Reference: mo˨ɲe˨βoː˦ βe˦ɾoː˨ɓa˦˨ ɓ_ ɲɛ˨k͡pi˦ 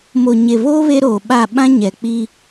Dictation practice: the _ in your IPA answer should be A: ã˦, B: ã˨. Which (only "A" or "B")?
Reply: A